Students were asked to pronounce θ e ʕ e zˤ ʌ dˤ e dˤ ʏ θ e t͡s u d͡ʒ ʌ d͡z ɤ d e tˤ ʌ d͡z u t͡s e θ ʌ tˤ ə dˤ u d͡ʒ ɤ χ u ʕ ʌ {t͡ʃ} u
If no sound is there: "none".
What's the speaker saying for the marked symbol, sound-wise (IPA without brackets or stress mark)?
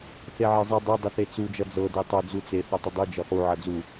d͡z